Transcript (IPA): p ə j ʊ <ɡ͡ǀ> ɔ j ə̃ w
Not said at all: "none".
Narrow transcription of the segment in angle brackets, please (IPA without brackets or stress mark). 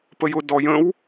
d